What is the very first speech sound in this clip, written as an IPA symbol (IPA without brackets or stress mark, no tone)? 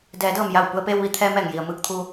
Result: d